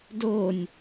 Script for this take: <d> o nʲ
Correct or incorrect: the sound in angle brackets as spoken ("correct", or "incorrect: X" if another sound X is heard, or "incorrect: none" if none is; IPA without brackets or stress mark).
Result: correct